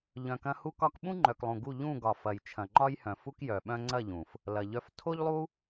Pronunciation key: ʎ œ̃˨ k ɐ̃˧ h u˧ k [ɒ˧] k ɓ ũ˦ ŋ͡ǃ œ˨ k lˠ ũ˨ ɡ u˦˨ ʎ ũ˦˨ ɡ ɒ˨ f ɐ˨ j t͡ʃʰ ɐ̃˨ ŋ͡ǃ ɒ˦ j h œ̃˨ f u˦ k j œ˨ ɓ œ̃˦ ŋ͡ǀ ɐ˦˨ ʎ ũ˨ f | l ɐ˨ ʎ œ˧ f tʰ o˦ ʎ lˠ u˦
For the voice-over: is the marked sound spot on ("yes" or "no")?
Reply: yes